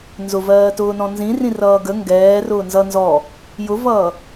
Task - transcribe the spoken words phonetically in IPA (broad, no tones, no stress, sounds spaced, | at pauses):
n z ʊ v ɜː t ʊː n ɔ̃ n z ĩ r ĩ r ʌː ɡ ə ŋ ɡ ɛː r ʊː n z ʌ n z ɔ | j ʊ v ʌː